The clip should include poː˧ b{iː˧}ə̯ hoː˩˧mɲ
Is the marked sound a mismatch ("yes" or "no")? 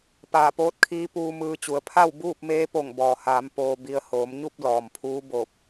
yes